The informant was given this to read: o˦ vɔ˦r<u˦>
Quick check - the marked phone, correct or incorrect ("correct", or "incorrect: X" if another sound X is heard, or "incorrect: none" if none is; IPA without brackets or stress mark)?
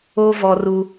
correct